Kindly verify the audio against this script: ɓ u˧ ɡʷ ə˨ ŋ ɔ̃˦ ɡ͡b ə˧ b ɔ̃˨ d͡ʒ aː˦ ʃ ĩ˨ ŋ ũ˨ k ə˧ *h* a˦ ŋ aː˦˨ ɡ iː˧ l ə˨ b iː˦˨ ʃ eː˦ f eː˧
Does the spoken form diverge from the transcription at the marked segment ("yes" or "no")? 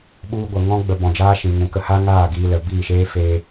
no